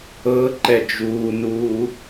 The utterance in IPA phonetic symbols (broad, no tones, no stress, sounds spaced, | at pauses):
ɤ ǃ ɛ d͡ʒ uː n uː